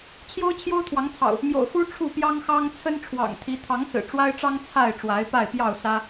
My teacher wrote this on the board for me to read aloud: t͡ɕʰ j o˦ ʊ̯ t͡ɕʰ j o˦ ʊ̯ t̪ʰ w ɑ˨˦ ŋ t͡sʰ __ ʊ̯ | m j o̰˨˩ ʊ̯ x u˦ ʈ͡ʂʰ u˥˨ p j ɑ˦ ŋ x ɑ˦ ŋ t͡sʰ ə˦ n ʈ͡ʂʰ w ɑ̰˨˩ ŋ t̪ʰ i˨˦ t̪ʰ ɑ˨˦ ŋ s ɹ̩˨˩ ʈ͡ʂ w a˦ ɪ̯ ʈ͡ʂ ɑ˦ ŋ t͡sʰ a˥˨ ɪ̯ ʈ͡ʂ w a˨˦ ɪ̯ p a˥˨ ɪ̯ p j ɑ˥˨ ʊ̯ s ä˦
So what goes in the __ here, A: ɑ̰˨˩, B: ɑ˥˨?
A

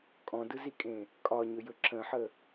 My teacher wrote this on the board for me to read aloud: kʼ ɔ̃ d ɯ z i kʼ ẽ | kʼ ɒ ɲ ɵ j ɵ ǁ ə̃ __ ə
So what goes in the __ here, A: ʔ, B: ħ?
B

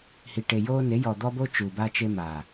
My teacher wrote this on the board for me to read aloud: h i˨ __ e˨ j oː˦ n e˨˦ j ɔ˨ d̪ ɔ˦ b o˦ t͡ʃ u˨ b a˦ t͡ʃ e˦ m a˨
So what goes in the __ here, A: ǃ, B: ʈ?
B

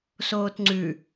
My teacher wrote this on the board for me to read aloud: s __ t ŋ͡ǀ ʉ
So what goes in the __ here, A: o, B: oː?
B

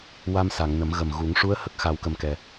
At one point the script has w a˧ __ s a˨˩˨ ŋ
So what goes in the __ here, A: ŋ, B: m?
B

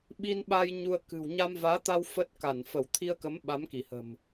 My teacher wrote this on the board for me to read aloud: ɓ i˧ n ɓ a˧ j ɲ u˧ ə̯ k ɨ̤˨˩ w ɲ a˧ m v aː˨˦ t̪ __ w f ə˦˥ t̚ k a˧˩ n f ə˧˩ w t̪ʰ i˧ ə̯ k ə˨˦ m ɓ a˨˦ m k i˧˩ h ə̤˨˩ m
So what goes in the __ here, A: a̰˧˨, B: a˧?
B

